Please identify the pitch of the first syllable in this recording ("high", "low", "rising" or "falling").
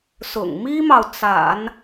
low